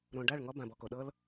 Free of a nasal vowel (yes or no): no